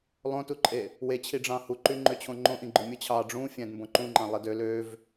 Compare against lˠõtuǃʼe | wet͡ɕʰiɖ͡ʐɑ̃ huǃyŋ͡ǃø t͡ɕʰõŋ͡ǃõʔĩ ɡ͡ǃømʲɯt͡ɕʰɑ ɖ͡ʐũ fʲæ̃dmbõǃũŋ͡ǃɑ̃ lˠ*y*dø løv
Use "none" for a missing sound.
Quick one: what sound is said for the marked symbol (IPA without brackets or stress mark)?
i